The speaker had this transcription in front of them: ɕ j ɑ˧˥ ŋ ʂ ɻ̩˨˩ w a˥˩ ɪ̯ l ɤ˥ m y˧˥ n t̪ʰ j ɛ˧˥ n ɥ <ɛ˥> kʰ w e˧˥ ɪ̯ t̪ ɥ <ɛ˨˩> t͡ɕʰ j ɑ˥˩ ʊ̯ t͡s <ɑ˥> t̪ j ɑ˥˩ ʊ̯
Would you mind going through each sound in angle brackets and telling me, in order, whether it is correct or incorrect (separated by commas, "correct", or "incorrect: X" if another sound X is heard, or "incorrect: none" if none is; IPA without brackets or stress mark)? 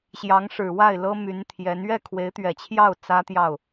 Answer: incorrect: ɛ˥˩, correct, incorrect: ä˥